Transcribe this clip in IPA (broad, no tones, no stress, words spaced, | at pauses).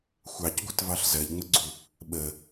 xʷɑcɡʷɨtvɑɬ zɜʎŋ͡məɡ͡ǀu | ɓə